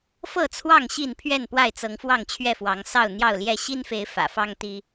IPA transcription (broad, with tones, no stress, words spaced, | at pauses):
fɤ˥˨t͡sʰwɑ˥˨ŋ ɕi˥˨npʰɥɛ˥˨n pwa˥˨ɪ̯t͡sɤ˨˦ŋ fwɑ˥˨ŋt͡ɕʰɥɛ˥˨fwɑ˨˦ŋ sɑ˥˨ʊ̯n̪jɑ˥˨ʊ̯ljɛ˥˨ ɕi˦nfe˨˦ɪ̯ fä̰˨˩fɑ˦ŋt̪i˦